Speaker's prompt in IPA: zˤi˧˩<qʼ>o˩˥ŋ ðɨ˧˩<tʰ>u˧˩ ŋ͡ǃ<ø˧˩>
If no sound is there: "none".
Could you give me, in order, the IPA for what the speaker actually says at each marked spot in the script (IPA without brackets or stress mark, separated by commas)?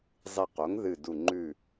q, d, ʉ˧˩